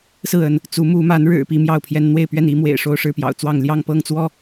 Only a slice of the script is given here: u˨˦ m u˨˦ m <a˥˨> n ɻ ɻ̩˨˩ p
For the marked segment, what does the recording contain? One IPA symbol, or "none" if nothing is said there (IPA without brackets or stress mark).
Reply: a˨˦